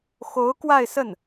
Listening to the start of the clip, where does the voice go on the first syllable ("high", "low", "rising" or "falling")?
rising